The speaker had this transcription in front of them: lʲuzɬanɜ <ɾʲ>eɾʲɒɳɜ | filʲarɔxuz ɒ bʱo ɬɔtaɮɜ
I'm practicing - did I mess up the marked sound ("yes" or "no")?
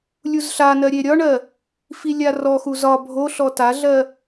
no